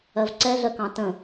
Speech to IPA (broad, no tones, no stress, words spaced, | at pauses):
ɜvǀɛɮɜkɑ̃ tə̃